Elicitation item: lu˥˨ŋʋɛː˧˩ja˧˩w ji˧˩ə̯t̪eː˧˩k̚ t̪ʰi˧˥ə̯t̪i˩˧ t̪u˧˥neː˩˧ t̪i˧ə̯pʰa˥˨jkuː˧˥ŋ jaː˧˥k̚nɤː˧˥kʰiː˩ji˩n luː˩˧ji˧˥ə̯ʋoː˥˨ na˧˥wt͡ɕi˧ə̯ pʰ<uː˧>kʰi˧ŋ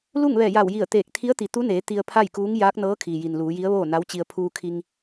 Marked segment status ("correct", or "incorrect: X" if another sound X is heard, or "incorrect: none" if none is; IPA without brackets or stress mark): correct